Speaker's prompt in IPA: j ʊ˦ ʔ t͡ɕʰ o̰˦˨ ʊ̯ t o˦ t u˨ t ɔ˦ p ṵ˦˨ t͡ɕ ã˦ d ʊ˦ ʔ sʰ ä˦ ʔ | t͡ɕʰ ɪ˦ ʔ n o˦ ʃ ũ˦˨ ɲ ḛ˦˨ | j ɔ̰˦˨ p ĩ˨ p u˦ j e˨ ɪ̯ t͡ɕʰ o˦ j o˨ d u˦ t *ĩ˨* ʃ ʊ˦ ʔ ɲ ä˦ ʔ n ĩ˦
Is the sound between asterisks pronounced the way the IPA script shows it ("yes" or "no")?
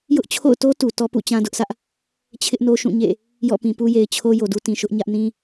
yes